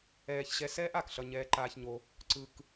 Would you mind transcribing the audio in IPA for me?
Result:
ɛː˧ ç ɕ ɛ˦ s ɛː˦ ʔ a˨ k ɬ ʌ˧ ɲ ɛː˧ ǃ aː˧ ç ɲ o˧ | ǀ ɯ˧ k

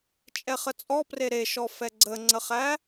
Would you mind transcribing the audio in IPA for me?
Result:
t͡ʃʼ ɛ χ ə t͡sʼ ɔ p r e ɾ e ʃ ɔ f ɛ ɡ͡ǀ ə ŋ͡ǀ ə χ æ

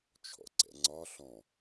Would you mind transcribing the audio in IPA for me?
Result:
t͡ʃʰ ɔ̰ ǀ ɛ̰ ŋ͡ǀ ɒ ɬ ɔ̃

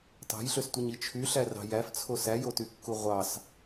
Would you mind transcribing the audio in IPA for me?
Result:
t ɑ̤ j ɬ ø s tʷ ɯ ɲ i t͡ʃʰ y ɬ æ r ɑ̤ j æ f t͡sʰ o s æ j o t y kː u ʁʷ ɑ s

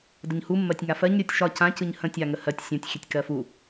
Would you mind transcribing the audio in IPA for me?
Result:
d ə ɲ h u mː ɜ tʲ ŋ a f ɜ ɲ ɾʲ o tʲ ʃ ɒ c ã c ɯ ɲ h ə̃ tʲ a ŋ ə h ɜ tʲ sʲ ə̃ tʲ xʲ ə tʲ k ɜ f u

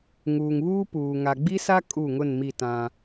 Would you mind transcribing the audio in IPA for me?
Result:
ŋ uː˨ ŋ β uː˦ p uː˨ ŋ a˨ ɡ͡b i˦ s a˦ kʼ u˦˨ ŋ ʊ˦˨ n m i˦˨ t ã˦

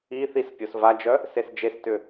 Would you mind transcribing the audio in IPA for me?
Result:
i θ i s pʲ o s v a d͡ʒ œ | s e s d͡ʒ e s t ʏ

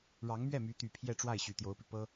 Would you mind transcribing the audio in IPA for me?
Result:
ɻ ɑ˧˥ ŋ m ɥ ɛ˥˩ m y˧˥ t̪ y˨˩ pʰ j ɛ˥˧ ʈ͡ʂ w a˥˩ ɪ̯ ɕ y˨˩ t̪ j o˧˥ ʊ̯ p i˧ p ɤ˥

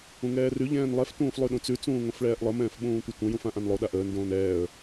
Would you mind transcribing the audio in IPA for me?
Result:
ũ ŋ ɛː r ʉ ʎ ɛ̃ː n lˠ ɛ f t ũː f lˠ ʉ ɗ ũ t͡s ʉ t͡s ũː ŋ õ f ɭ ɛː ʔ lˠ ə m ɛ̃ː f ɓ ũː tʷ ə tʷ ə̃ j ũ f ã ʔ ã n lˠ o ɗ a ʔ əː n d õː n ɛː ə̯

